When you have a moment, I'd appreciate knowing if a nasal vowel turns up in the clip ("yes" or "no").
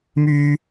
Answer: no